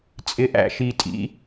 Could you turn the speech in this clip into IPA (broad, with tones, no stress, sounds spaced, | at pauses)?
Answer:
t͡sʼ ɪ˦ ʔ æ̰˦ ʃ i˧ tʼ ḭ˦